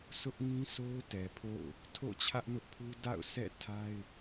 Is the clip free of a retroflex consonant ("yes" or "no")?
yes